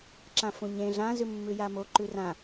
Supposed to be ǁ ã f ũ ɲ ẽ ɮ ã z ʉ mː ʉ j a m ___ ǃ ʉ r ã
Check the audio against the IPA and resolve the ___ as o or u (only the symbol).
o